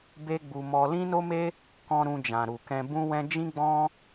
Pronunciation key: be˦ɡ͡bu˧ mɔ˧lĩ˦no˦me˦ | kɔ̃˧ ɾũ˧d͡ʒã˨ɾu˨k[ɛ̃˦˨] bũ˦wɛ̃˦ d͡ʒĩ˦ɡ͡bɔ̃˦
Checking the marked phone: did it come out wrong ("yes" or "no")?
yes